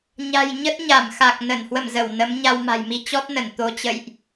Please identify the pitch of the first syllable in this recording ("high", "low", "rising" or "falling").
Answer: low